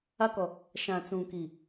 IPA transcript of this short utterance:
a˦ k ɔ˨ | ʃ ã˨ t͡s ũ˨ k i˨

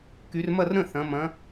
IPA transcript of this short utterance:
k y˩˧ r m ɐ˥˩ r ɾ ə̃˥˩ θ ɐ̃˩˧ m ɐ̃˩˧

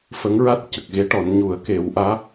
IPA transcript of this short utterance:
f ə˧˥ ŋ ɹ a˦˥ t̚ c ə˨˩ k̚ ɣ e˧˥ ʈ ɔ˨˩˦ n ɲ u˨˩˦ ə̯ k e˨˩˦ w ʔ aː˧˥

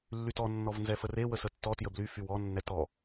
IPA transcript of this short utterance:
lː y t ɔ nː ɔ v n z ɛ f ə r e w ə s ə tː ɔ t j ə b l y f y w ɔ nː ɛ t ɔ

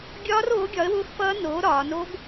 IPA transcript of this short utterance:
ɡʲ ɒː˦˥ r oː˨˥ ɡʲ ɒ˨˥ ə̯ w ʊː˦˥ x f ʌː˦˥ n oː˨˥ ɾ ɒː˩˧ n o˦˥ ɡ

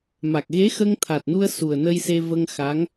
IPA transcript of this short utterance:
m a˨˩ k̚ ɣ e˧˥ x ə˧ ŋ t̪ʰ a˨˩ t̚ n u˧ ə̯ s u˨˩ ə̯ n ə˧ j s e˧ v ə˧ ŋ x a˧˥ ŋ

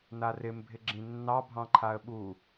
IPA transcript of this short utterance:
n a r ɪ m bʱ ɪ ɡ͡ǁ ĩ nː ɑ bʱ ɑ̃ ǃʰ a ə̯ ɓ u

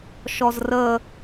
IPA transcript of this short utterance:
ʃ ɔ z r ə

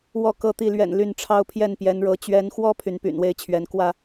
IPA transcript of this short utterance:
w ɔ˥˨ k ɤ˥˨ t̪ i˥˨ l ɥ ɛ̰˨˩ n l y˥˨ n ʈ͡ʂʰ ɑ˦ ʊ̯ pʰ j ɛ˥˨ n p j ɛ˨˦ n ɻ ɤ˨˦ t͡ɕ ɥ ɛ˨˦ n x w ɔ˦ pʰ y˨˦ n p y̰˨˩ n w e˥˨ ɪ̯ t͡ɕʰ ɥ ɛ˨˦ n k w ä˥˨

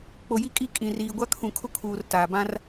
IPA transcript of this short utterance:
k͡p o˨ j i˦ kʼ i˦˨ kʼ ĩ˨ r iː˨ ɡʷ a˦ kʰ ũ˨ kʰ ʊ˦ kʰ uː˨ r t aː˨ b ã˦ r

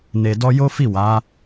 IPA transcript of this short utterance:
n e˧ d ɔ˦ j o˦ f i˦˨ w a˨˦

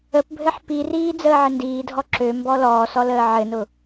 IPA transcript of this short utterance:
ə p bʱ ɘ ħ p i r iː d͡z əː ʕ ɘ n d iː dʱ ɔ ǁ ø m b ɔ l ɔː s ɔ l əː ʕ ɘ n ʊ

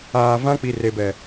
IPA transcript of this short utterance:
aː˨ v ã˦ k͡p i˨ r e˨ b ɛ˨

